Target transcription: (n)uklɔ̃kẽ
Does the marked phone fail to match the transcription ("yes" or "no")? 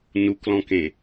no